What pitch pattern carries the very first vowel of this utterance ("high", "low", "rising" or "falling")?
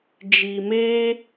low